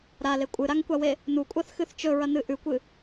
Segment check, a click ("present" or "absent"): absent